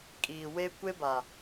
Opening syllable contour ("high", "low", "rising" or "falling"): low